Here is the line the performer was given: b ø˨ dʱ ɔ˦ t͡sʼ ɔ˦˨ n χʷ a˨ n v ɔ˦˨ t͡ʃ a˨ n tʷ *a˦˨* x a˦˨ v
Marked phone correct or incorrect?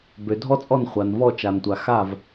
incorrect